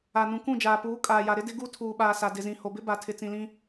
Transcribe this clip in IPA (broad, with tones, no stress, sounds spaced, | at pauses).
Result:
a˨ n ũ˨ k ũ˦˨ d͡ʒ aː˨ p uː˨˦ kʼ aː˨ j a˨ ɾ ɪ˦ d ɪ˦ ɡ u˦ tʰ uː˨ ɓ aː˨ s a˨ d ɪ˨ z ĩ˨ h o˨ b ɪ˦ b a˨ tʰ ɪ˨ t͡s ĩ˨ l ĩ˦